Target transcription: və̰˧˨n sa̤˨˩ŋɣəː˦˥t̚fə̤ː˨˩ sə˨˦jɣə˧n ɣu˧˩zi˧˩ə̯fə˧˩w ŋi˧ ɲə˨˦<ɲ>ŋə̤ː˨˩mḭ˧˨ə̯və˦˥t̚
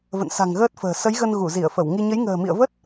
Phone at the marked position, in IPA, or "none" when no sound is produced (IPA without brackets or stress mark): j